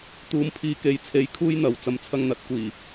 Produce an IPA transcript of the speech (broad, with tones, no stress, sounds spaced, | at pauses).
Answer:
t̪ uː˨ m pʰ iː˨ k e˨˥ j t͡sʰ e˨˥ j kʰ uː˥ j n̪ ɐ˨ w t͡s ɐ˧ m t͡sʰ ɐ˧ ŋ n̪ ɐ˨˥ t̚ kʷ iː˨˩